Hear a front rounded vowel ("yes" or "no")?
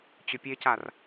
yes